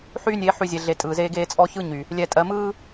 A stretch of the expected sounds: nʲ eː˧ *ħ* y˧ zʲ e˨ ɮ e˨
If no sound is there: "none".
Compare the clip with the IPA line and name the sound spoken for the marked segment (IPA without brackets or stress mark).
ħ